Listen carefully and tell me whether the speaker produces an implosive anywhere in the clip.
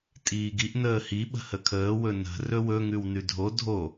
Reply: yes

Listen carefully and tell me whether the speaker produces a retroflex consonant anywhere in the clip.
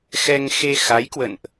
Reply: no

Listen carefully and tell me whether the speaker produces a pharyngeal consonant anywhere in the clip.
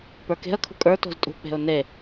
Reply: no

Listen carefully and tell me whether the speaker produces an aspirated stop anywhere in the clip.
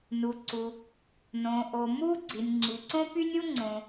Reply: no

